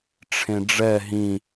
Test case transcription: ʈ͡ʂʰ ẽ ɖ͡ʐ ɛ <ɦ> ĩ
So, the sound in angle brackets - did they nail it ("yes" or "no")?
yes